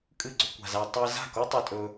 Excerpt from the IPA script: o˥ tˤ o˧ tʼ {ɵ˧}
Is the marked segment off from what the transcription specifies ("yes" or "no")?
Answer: no